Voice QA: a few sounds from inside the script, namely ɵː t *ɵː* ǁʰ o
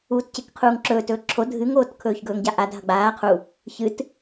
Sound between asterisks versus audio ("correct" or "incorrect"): correct